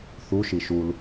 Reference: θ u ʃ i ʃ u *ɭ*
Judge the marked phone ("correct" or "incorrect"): incorrect